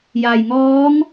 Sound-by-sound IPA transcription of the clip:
j a˩ j ŋ ɔː˧˥ ŋ

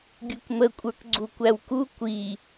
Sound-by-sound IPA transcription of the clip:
ɡʲ u k m ə kʷʼ ə˞ k ɡ͡ǀ u kʷ æ w k u kʷ i

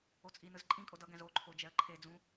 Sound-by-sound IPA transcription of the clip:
o t͡sʼ i n ɯ z ǃʼ ĩ kʼ o d ʌ ɡ ɛ̃ z o ǃʰ o d͡ʒ ɛ ə̯ ǃʰ e d͡z ũ

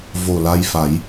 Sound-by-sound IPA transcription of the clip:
v o˨˩ l a˧ j f a˨˩˦ j

